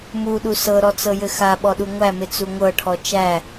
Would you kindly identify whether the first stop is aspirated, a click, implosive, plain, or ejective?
implosive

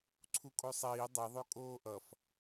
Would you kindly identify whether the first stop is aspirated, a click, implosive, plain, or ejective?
click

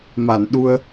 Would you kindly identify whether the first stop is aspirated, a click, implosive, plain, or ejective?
implosive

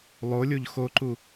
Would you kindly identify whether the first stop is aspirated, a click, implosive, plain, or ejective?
click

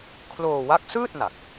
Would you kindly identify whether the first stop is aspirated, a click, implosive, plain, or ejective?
aspirated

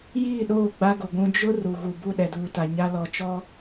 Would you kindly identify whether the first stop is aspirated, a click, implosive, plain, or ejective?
implosive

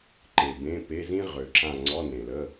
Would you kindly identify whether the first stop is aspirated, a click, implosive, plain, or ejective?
click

